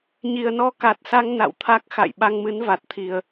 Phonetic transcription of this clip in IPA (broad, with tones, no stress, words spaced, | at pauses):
ɲi˨˩ə̯nɔ˧ ka˨˩t̚sa˧ŋ na̰˧˨wt̪ʰa˦˥k̚ xa̰˧˨j ɓa˧ŋmɨ˨˦nva˨˩t̚t̪ʰi˨˩ə̯